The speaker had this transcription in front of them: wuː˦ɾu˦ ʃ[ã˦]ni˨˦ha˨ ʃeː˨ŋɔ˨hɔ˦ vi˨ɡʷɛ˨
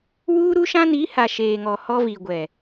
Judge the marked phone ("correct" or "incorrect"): correct